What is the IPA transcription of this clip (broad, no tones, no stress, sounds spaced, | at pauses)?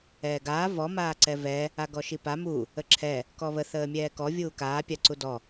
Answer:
ɛː ɡ aː v ɔ m aː ǀ ɛ v ɛ | a ɡ ɔ ʃ i p a m u | ə ǁʰ ɛ | k ɔ β ə θ əː mʲ ɛː k ɔ vʲ uː k aː pʲ a ǀ u d ɔ